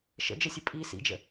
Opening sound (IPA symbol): ʃ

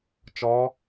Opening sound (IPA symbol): t͡ʃ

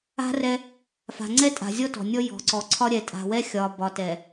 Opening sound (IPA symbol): a̤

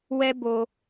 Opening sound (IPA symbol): w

